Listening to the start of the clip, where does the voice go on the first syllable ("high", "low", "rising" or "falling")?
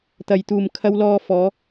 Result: low